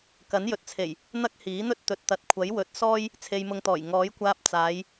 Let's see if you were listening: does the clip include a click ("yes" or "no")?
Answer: no